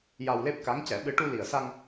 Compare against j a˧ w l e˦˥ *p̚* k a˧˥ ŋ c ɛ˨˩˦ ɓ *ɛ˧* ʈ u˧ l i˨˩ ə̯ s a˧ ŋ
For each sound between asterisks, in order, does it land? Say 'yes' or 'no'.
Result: yes, no

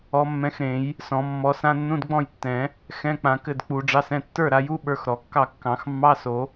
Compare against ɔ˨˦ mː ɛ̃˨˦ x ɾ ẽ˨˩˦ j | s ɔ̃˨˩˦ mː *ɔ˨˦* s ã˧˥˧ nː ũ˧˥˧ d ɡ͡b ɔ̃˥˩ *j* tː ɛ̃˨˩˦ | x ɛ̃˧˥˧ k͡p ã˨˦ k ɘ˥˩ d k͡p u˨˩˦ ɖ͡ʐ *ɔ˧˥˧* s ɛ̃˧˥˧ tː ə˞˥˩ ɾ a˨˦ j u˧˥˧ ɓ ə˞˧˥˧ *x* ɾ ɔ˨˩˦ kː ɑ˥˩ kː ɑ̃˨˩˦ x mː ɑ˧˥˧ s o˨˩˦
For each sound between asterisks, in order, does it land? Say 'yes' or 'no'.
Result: yes, yes, no, yes

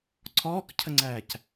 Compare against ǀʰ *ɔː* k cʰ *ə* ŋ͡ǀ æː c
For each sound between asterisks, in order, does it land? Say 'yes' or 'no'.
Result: yes, yes

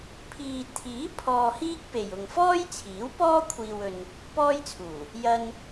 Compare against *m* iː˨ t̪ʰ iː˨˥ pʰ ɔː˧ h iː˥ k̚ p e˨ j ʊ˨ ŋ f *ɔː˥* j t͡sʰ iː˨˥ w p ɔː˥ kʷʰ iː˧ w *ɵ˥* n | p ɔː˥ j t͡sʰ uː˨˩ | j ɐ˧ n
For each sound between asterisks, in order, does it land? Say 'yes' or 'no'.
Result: no, yes, no

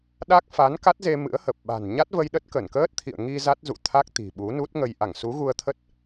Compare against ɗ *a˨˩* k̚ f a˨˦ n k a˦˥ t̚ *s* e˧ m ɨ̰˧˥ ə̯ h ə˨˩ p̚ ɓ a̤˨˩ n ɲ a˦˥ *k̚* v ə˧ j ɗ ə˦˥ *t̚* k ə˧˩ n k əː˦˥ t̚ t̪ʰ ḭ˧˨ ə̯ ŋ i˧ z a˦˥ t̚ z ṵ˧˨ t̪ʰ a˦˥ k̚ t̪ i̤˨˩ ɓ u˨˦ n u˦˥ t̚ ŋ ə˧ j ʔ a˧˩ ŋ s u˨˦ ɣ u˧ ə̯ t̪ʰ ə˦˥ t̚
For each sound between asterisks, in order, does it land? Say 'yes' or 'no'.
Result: no, no, no, yes

